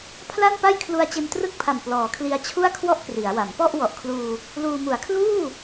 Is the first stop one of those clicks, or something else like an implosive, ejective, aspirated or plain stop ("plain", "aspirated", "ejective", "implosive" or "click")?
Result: aspirated